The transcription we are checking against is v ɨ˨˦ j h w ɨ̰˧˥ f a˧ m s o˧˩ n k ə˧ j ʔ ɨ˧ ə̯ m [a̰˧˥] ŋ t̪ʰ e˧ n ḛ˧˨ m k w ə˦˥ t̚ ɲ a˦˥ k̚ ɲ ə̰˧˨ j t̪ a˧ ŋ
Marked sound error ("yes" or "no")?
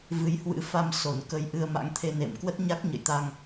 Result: no